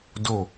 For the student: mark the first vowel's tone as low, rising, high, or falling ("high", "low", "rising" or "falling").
low